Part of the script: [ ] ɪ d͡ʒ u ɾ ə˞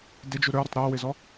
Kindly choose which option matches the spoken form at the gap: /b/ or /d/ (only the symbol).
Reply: d